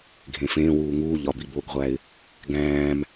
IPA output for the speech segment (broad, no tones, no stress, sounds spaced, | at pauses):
ɡʱ ẽ f ẽː w uː ŋ uː ʎ ɒ b i b o ɡ ʁʷ æ ɪ̯ | ɡ æ̃ː m